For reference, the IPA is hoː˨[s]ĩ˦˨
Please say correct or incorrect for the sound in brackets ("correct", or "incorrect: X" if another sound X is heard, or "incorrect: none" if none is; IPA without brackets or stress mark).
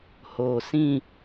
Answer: correct